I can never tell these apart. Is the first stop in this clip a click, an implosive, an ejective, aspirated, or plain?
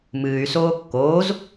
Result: plain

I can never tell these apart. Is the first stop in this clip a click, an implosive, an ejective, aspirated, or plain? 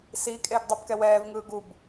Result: ejective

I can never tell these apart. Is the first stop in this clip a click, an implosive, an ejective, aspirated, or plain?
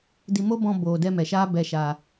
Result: plain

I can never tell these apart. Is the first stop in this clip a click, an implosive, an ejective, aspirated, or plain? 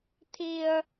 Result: aspirated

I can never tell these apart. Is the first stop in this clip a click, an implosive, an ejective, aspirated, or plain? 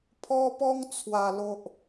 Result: aspirated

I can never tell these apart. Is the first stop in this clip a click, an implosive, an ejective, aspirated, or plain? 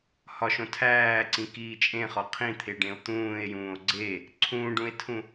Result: aspirated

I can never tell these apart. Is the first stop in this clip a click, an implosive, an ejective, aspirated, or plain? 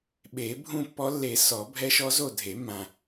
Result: implosive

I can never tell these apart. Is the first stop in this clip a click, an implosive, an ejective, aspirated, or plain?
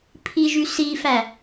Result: aspirated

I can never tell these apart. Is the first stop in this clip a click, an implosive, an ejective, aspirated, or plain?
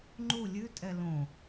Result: click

